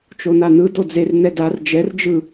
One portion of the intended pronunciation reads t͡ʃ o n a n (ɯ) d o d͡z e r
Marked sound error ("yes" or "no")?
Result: no